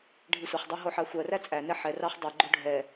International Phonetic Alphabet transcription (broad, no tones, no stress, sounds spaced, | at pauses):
ɖʱ i sʷ ɛ χ dˤ ɑ ɦ o ħ ɑ xʷ ɜ r æ t͡sʼ æ n ɛ ħ ɛ r ɑ χ dˤ i ɡ͡ǃ o ɖʱ ɛ